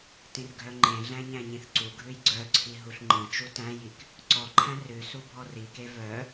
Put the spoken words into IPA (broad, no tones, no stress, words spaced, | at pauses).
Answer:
tĩrɡʱœŋ͡ǃẽɮæ̃ ɲæ̃ɲĩθǀuɡʱʉj ɡ͡ǀœǀʰi ɦuɬŋ͡ǃĩt͡ʃu tæ̃jik | ǀɔǃʰæ̃ rʉ subʱɔrike vœ